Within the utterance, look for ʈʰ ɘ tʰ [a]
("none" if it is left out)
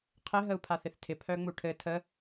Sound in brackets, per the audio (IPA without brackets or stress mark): ə